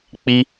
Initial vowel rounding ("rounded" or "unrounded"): unrounded